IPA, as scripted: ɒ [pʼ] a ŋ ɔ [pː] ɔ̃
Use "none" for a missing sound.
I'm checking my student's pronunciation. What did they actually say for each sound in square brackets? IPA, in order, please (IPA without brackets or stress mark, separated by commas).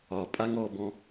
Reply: pʼ, b